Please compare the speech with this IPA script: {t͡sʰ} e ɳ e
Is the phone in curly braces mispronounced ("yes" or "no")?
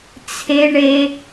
no